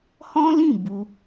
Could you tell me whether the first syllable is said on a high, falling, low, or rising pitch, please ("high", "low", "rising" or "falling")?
high